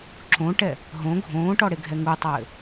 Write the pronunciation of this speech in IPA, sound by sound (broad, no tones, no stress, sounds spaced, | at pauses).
ǁ õ ʈ ɛ | ɦ õ ɡʱ õː ʈ ɔ ɽ e ɡʱ ɛ ŋ u tˤ ɘː